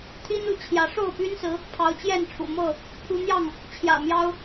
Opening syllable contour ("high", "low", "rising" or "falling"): high